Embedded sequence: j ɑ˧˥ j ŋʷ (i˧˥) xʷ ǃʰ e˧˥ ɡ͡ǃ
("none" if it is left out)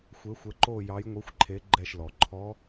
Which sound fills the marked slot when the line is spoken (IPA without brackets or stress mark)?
i˧˥